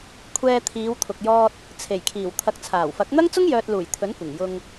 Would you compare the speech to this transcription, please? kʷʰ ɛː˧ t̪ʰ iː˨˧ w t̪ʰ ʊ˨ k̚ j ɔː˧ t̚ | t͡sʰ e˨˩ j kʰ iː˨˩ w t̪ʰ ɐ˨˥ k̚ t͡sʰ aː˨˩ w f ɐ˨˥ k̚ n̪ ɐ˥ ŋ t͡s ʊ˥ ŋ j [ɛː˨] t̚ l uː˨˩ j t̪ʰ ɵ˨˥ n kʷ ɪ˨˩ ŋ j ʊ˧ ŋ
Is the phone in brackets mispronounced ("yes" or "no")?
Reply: yes